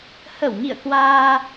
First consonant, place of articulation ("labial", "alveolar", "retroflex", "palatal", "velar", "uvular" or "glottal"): glottal